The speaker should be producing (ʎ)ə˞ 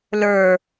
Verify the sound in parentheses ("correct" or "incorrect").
incorrect